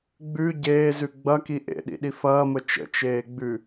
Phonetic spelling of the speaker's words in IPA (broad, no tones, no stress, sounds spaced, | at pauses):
ɡ͡b ʉ ɟ eː z ʉ ɡ͡b ɐ k i ʔ ḛ ɗ ḭ ɗ i f ɐː m ə t͡ʃ ə̰ t͡ʃ eː ɡ͡b ʉ